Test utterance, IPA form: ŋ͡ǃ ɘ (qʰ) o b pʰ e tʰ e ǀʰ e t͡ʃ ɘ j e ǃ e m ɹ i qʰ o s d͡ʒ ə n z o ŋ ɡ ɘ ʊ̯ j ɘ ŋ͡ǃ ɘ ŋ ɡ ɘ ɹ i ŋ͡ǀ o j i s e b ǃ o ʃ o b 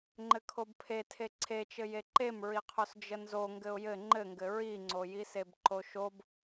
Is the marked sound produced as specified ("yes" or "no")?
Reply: no